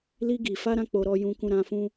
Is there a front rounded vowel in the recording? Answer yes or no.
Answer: no